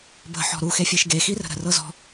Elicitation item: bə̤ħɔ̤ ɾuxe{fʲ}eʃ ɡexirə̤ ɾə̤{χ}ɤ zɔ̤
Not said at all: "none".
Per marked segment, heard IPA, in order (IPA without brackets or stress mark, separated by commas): fʲ, r